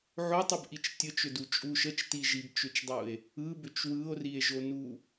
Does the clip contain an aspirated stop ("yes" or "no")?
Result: no